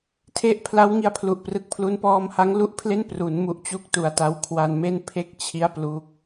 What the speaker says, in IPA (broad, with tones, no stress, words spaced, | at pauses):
tʰe˦˥ʔpʰla˦˥w ŋi˧a̯pʰlu˨˩ʔprɯ˨˩k̚pʰlu˦˥n pɔː˧mha˦˥ŋlu˦˥ʔpʰle˥˩n pru˩˦n mu˦˥ʔt͡ɕu˥˩k̚tu˨˩a̯ ta˦˥wkʰwa˧nme˥˩n pʰe˥˩k̚ t͡ɕʰi˦˥a̯ plu˦˥k̚